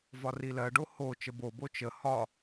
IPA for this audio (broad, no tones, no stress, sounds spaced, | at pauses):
v ɒ r i l ɜ ɖ o h o t͡ʃ ə b o b o t͡ʃ ə h ɒ